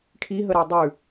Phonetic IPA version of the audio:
ʈʰ i ɦ ə ɾ a dˤ ʉ

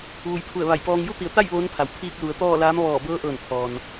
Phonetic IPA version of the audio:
ʋ u˩˧ j pʰ u˧˩ ə̯ ʋ a˧˩ j p ɔː˧ ŋ j u˥˨ t̪ i˩˧ ə̯ t̪ a˥˨ j ʋ oː˧˥ n pʰ a˩ w pʰ iː˧ k̚ l u˩˧ ə̯ t̪ ɔː˥˨ l aː˧˥ m ʋ ɔː˧˩ b ɤː˧˥ ʔ ɤː˧˩ n pʰ ɔː˩ n

